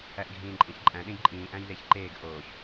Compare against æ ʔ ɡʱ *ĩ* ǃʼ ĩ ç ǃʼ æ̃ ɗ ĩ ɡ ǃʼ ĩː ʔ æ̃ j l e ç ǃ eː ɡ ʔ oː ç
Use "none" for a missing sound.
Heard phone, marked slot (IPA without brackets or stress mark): ĩː